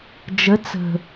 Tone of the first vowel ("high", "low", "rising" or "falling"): rising